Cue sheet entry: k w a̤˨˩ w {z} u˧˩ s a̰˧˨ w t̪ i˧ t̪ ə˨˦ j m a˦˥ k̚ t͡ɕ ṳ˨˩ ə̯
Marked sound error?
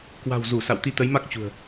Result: no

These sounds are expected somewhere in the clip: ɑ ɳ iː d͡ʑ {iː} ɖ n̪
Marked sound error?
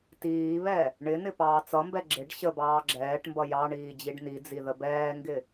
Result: yes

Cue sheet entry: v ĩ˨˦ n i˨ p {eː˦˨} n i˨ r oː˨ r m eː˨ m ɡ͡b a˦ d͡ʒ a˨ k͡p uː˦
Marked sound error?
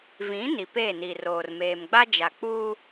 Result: no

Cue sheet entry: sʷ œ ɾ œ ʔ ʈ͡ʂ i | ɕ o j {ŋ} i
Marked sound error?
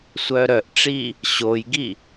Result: yes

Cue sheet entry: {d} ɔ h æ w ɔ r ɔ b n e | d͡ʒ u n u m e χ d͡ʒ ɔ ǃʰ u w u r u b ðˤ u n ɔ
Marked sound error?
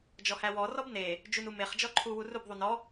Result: yes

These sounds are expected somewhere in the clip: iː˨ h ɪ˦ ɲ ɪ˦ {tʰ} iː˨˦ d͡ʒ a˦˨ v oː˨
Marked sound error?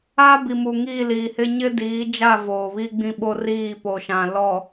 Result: yes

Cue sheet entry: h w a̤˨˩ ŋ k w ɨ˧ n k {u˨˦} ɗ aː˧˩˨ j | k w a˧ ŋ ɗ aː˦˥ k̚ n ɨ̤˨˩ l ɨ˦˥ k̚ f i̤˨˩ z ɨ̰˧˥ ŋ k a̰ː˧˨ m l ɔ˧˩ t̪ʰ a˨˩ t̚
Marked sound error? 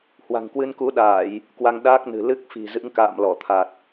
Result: no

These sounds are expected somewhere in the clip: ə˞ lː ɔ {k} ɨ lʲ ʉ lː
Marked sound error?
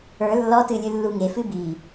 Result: yes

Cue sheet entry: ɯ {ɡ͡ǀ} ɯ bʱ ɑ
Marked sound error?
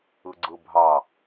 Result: no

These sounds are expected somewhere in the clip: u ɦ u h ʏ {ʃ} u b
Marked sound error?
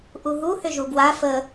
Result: yes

